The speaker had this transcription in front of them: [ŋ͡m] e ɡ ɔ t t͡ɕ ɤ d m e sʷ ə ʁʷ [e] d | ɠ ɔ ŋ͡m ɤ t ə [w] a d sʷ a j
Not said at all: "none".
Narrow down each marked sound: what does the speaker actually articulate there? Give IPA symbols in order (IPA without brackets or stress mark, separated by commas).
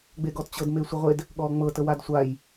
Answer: ɡ͡b, e, w